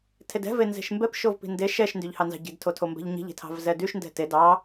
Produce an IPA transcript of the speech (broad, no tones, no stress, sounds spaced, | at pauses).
tʰ e d ɛ̤ v e n z e̤ ʃ m b ɛ p ʃ o v p i̤ n d e ʃ ɛ ʃ n d y ʎ h ɑ n z ɑ̤ ɟ i̤ d tʰ o tʰ o m b ɛ̤ ʎ ɲ i̤ ʎ e̤ tʰ ɑ̤ v z ɛ d y ʃ n d ɛ̤ t e d ɑ